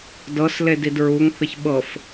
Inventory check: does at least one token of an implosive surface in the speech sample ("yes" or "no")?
yes